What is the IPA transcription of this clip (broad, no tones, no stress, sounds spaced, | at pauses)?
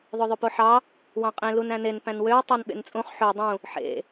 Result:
ðˤ o ðˤ ø p o ħ ɑ | w ɑ̃ qʼ ẽ l u n æ̃ n e n p æ̃ n w ø w tˤ ɑ n ɓ ḛ n t͡sʼ ũ χ ħ ø dˤ ũ | ħ ḛ